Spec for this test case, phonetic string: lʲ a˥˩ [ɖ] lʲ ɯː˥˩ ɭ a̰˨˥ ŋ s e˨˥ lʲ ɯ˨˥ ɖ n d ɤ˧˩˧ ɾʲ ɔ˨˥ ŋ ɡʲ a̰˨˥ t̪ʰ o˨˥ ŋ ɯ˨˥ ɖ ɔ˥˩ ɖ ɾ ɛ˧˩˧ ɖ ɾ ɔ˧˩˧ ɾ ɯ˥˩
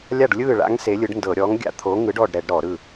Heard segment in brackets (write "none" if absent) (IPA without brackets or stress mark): ɖ